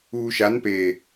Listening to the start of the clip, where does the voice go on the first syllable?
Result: low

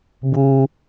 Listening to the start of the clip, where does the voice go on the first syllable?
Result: high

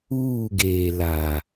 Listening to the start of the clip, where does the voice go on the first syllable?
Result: falling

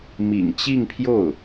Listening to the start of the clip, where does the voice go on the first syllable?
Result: low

